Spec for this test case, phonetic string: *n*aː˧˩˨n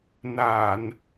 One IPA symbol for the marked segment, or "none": n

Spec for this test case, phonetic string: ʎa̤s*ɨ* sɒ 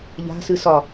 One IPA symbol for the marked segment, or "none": ɨ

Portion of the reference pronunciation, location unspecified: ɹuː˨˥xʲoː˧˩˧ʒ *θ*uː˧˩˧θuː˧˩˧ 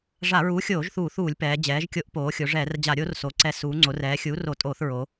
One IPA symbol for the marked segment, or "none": θ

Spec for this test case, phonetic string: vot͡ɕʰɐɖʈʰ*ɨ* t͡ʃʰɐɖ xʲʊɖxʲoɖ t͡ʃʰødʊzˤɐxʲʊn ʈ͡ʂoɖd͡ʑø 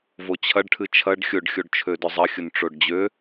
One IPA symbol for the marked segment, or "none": ɨ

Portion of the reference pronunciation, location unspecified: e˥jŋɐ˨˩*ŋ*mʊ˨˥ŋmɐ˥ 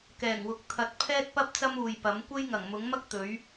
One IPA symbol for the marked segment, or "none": ŋ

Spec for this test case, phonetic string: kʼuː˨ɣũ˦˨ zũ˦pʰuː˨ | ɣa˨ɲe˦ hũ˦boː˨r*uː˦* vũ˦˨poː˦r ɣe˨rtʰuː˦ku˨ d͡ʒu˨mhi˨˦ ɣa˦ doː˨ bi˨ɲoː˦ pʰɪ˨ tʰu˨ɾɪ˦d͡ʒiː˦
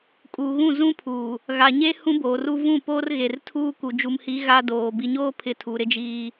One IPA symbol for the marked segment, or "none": u˦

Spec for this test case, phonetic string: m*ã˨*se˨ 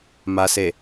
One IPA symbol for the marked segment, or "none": a˨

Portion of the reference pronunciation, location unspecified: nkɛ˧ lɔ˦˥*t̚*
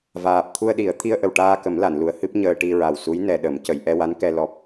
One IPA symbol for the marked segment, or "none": p̚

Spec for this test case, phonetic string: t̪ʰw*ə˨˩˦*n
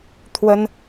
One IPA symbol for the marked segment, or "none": ə˥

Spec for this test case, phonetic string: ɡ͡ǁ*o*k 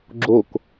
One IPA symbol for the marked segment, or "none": o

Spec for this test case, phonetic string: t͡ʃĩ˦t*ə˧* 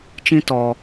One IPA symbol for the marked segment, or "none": ɔ˧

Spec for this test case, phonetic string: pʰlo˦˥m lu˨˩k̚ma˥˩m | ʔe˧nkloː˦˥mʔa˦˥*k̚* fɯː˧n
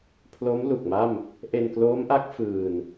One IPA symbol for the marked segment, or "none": k̚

